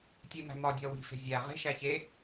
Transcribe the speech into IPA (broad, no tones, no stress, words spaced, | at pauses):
tʲemæ̤mɒdʲɒ wi̤fe̤ zʲæ ʁe̤ʃæ çe